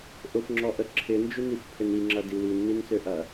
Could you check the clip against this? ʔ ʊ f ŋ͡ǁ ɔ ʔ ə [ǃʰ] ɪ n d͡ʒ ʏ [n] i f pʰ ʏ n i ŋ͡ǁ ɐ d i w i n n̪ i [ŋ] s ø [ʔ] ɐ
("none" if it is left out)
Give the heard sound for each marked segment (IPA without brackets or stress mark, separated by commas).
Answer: ǁʰ, n, n, ʔ